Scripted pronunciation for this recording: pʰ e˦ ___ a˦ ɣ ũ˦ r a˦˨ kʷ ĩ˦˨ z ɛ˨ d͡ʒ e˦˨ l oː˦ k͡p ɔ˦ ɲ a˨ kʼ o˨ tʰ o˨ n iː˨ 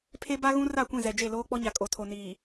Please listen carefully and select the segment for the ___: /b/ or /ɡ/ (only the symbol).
b